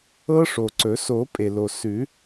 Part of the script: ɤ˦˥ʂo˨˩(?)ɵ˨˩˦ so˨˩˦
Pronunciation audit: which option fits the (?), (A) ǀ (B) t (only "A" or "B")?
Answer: A